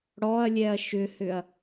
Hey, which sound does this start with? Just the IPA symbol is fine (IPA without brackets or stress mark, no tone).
ɽ